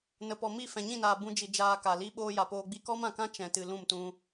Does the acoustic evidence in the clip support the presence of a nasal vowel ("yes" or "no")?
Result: yes